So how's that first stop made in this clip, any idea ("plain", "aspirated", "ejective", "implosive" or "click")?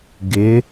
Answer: plain